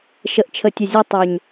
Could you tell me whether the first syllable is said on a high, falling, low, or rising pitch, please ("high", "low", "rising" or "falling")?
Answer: low